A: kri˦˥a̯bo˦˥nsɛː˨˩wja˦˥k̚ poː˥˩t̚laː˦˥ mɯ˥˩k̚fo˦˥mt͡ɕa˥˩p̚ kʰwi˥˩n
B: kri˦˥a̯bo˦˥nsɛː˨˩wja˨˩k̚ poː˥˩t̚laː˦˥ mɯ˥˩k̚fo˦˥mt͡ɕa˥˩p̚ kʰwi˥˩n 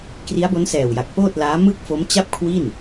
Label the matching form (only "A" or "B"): B